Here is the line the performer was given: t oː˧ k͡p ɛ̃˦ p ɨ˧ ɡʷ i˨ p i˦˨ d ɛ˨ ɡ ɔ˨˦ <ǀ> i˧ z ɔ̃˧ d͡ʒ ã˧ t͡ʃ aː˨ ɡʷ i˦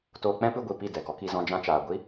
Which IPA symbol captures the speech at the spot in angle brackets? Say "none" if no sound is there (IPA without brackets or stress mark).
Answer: k